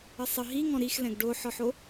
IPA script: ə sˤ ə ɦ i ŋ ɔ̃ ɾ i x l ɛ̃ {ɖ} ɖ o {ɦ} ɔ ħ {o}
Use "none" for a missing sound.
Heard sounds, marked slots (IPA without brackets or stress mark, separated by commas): ɡ, ħ, o